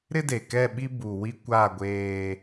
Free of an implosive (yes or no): no